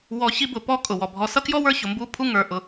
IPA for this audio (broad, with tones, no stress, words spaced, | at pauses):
wɔ˨ çi˥bʊ˨pɔ˥ kʼʊ˩wɔ˩ bʱɔ˨sʌ˥kjɔ˥wə˞˦ çʊ˨mbu˥pʰu˥ ŋə˞˨ ʔʊ˨